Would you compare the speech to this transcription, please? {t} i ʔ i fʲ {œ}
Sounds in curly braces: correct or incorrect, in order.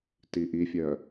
correct, correct

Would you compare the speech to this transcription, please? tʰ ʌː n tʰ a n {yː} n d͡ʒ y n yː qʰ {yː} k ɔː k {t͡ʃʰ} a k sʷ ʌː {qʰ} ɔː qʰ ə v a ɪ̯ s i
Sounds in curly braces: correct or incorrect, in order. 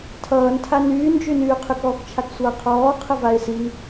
correct, incorrect, correct, correct

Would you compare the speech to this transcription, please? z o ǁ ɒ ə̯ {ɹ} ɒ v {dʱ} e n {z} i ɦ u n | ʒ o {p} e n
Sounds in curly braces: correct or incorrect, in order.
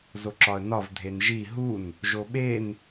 incorrect, correct, incorrect, incorrect

